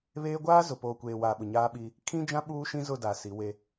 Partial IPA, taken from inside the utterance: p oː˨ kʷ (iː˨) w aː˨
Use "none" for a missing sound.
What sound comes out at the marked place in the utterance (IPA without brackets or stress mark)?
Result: eː˨